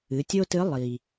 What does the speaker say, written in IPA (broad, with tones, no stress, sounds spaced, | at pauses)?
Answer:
ɨ˩˧ tʲ o˥ t ɨ˧˥ lˠ i˩